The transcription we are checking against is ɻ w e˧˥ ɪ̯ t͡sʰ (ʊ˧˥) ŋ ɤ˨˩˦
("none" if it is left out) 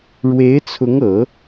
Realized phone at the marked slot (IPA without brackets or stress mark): ʊ˧˥